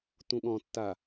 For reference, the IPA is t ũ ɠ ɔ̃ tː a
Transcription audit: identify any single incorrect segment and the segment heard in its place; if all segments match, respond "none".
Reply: none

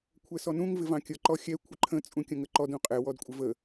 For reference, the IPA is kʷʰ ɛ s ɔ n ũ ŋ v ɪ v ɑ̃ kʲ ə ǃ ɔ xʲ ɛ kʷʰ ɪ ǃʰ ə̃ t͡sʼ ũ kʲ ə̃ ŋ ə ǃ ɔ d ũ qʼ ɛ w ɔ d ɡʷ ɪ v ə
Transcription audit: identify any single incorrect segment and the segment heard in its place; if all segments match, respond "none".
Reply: ɡʷ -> kʷʼ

